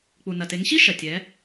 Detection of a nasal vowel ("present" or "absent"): absent